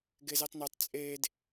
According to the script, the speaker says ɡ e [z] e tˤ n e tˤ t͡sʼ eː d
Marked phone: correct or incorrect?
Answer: correct